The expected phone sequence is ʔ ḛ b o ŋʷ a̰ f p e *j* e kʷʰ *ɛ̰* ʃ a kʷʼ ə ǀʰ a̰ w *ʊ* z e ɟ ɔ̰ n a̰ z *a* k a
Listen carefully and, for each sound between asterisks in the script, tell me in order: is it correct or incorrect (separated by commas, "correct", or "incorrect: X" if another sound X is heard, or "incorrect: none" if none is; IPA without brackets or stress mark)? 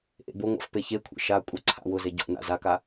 incorrect: ç, incorrect: ḛ, correct, correct